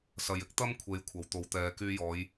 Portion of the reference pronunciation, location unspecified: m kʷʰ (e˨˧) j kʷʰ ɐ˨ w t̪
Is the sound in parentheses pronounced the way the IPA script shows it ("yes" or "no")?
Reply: yes